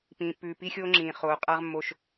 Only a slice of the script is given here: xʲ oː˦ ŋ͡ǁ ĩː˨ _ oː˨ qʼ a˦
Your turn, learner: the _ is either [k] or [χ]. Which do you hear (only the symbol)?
χ